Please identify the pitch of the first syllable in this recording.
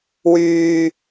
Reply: low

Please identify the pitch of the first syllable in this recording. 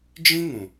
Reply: high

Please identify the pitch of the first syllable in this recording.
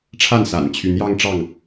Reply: falling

